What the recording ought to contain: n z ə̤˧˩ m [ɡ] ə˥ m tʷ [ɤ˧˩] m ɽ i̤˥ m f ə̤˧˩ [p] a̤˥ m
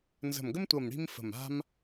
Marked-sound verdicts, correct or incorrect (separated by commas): correct, correct, incorrect